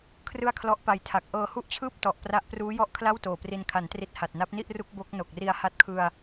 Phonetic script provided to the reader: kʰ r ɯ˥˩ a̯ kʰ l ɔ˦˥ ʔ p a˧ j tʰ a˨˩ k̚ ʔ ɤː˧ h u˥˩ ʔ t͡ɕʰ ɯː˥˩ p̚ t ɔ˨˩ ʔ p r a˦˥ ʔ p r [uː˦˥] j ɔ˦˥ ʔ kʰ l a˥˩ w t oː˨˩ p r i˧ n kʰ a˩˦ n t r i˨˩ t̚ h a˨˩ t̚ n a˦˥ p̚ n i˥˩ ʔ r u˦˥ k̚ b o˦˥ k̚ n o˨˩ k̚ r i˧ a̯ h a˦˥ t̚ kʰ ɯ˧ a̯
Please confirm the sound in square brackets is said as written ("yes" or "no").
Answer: yes